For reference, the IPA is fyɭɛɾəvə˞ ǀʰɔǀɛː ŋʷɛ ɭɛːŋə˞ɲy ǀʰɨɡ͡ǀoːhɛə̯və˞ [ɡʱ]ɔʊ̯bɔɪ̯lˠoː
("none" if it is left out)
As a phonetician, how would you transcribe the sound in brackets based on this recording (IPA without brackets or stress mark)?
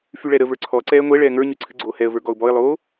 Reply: ɡ